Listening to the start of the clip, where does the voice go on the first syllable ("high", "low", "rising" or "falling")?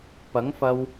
rising